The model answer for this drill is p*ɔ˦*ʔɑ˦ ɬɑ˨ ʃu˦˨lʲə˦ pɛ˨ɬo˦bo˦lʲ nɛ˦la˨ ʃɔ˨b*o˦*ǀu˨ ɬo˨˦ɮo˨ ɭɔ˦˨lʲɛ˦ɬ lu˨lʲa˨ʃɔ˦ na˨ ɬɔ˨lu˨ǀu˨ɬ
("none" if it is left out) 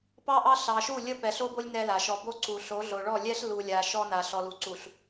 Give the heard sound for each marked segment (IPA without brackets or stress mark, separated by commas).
ɑ˦, o˦